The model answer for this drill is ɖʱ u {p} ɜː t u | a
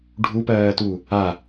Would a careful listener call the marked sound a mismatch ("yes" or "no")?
no